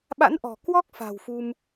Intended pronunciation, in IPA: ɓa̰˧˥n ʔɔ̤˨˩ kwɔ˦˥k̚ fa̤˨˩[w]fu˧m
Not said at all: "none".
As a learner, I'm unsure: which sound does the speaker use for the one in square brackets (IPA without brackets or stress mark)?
w